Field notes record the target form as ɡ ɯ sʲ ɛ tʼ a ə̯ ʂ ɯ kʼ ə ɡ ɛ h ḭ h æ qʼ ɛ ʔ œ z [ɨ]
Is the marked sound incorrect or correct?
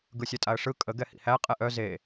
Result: incorrect: e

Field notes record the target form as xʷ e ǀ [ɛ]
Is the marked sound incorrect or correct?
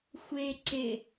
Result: incorrect: e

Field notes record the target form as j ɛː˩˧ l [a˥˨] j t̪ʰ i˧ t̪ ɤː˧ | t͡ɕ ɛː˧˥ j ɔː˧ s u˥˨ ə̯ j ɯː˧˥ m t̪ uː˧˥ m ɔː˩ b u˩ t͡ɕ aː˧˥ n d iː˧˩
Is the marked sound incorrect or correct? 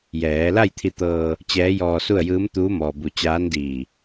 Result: correct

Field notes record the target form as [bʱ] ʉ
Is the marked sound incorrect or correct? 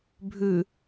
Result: correct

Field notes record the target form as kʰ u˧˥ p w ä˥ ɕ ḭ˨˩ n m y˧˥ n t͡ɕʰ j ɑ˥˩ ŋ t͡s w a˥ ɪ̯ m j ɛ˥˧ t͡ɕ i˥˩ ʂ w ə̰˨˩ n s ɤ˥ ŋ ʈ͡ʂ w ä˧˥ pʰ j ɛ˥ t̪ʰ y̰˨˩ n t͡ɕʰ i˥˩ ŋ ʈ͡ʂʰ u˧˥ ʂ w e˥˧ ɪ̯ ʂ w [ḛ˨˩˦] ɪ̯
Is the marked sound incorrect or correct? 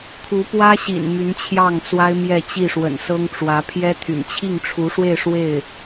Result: incorrect: e˥˩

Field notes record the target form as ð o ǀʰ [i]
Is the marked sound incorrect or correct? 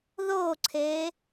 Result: incorrect: e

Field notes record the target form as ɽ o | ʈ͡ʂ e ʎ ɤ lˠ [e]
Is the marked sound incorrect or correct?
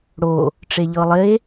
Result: correct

